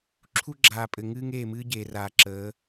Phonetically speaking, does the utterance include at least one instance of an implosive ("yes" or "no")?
no